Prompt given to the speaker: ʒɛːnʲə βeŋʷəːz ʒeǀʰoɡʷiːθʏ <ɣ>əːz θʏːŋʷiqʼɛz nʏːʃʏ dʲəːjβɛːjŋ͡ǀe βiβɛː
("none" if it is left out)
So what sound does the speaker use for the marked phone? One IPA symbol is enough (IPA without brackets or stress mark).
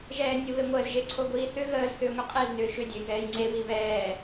ɣ